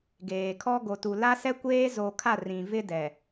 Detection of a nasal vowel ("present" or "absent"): present